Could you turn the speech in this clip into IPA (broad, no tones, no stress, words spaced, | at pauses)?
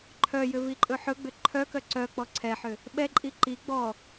ǃʰœjʏviǃʼɵ ħɵɡ͡bʏ ǃʰœkœ ǀœk͡pɔ ǀʰɛħʏ | ɓɛǃʼi ǃi ɡ͡bɔ